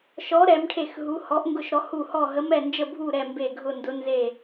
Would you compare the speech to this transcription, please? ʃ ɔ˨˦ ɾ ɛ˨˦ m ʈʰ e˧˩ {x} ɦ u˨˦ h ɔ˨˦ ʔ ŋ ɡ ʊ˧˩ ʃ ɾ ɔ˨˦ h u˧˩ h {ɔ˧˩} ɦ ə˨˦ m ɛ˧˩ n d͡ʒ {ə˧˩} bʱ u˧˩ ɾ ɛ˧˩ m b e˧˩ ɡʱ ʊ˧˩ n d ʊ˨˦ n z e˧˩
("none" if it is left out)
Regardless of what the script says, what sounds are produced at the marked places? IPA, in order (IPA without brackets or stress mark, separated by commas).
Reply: x, ɔ˧˩, ə˧˩